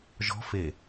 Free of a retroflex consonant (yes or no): yes